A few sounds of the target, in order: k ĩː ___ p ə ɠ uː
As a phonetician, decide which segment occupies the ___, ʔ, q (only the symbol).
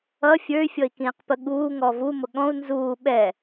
q